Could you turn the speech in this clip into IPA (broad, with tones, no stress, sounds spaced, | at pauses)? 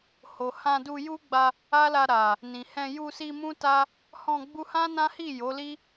h o˨ h ã˧ d u˧ j u˦ ɡ͡b a˧ | a˦ l a˧ ɾ a˨ | n ĩ˨ h ɛ̃˧ j u˧ s i˧ m ũ˦ t a˦ | h ɔ̃˧ ɡ͡b u˧ h ã˦ n ã˦ h i˦˨ j o˨˦ l i˦